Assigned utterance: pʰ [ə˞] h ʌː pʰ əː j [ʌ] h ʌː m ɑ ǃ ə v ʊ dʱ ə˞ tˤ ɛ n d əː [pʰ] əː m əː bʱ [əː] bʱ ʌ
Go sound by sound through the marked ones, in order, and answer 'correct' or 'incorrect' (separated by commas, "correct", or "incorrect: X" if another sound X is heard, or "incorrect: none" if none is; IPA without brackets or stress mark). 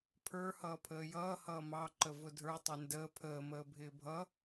correct, incorrect: ʌː, correct, incorrect: ɪː